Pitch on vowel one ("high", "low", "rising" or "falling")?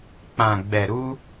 low